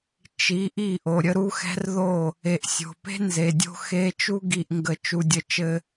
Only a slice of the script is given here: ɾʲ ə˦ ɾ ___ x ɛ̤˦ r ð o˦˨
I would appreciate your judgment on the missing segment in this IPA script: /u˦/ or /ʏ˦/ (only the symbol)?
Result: u˦